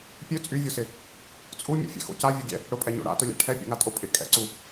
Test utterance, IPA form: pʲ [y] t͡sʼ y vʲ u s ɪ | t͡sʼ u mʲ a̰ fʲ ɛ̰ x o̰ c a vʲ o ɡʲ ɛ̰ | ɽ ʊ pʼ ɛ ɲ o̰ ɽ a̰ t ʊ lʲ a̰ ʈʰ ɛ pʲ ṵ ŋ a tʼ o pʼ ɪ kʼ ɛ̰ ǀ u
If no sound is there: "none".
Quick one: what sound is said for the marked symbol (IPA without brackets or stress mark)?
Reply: ø